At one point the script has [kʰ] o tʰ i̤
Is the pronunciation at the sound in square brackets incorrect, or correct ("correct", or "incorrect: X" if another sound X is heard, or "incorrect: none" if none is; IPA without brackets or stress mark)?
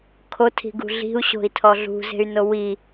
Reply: correct